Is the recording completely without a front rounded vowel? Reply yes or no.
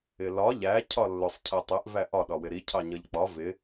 yes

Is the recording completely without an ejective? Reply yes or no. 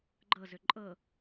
no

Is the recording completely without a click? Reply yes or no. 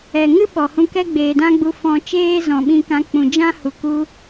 yes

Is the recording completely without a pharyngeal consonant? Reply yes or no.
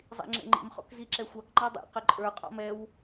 yes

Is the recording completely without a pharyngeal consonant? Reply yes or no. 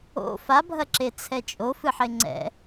no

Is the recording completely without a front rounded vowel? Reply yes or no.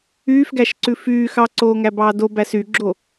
no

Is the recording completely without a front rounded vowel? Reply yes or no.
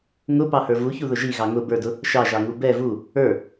yes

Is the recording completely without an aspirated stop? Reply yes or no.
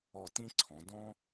no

